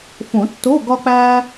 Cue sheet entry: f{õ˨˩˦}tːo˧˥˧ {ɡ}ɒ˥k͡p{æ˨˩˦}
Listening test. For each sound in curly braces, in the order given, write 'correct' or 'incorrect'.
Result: correct, correct, incorrect: æ˥

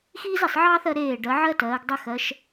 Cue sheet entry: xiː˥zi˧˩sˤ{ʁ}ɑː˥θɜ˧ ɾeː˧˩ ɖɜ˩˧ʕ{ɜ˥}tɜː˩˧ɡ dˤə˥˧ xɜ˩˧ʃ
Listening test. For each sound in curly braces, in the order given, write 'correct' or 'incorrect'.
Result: incorrect: ʕ, correct

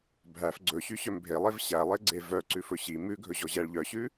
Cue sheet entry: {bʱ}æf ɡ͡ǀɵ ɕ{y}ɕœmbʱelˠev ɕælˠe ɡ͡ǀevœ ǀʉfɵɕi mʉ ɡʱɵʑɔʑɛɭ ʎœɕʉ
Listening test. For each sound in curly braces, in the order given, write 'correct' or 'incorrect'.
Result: correct, correct

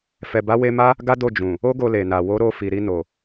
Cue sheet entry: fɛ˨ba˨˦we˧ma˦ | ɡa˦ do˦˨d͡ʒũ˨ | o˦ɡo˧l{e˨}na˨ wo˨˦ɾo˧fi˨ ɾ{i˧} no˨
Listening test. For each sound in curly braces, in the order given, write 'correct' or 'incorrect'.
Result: correct, correct

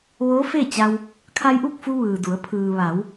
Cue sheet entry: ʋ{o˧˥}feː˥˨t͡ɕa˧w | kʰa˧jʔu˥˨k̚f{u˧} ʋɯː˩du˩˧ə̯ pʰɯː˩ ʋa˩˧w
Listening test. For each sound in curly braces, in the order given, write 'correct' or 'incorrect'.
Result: incorrect: oː˧˥, correct

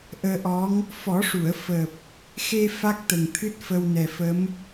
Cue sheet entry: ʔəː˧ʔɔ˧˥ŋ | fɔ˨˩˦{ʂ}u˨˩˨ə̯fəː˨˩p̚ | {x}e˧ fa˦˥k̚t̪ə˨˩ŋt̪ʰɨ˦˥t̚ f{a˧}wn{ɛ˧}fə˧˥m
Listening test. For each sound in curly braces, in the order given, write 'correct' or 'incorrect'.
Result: correct, correct, incorrect: ə˧, incorrect: ɛ˨˩

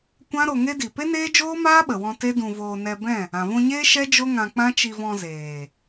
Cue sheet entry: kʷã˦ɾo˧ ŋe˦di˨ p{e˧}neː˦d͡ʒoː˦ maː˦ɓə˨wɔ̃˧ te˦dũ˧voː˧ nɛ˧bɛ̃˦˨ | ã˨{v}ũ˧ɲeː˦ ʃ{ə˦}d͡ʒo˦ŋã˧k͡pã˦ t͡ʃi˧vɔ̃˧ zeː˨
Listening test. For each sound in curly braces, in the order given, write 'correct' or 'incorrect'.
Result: incorrect: e˦, correct, incorrect: ɛ˦

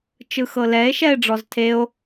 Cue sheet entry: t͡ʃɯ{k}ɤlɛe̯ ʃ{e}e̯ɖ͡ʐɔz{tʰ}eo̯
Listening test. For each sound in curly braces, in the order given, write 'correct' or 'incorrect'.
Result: incorrect: x, incorrect: ɛ, correct

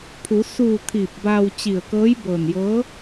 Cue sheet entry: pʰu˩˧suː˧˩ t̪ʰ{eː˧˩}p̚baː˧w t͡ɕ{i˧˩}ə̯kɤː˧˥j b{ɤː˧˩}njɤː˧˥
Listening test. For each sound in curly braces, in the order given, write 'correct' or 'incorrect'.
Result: incorrect: iː˧˩, correct, correct

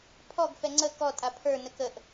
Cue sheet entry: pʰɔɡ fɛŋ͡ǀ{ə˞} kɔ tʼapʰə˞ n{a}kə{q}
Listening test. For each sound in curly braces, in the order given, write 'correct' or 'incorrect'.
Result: incorrect: ə, incorrect: ə, incorrect: ʔ

